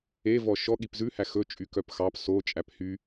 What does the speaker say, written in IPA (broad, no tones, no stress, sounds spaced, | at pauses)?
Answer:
e v ɔ ʃ ɔ ɠ i p z ʉ h æ x ɵ t͡ʃʼ y k œ p x ɑ p s o t͡ʃʼ æ p h y